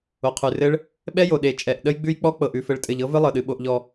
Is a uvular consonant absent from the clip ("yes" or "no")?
no